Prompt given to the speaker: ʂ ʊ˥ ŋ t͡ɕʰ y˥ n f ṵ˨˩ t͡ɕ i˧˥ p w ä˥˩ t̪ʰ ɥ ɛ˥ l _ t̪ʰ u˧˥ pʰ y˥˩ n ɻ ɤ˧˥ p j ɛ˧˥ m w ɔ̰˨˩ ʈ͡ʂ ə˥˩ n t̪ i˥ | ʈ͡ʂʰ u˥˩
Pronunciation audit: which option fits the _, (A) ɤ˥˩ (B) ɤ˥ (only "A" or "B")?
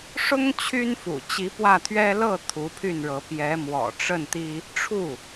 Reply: A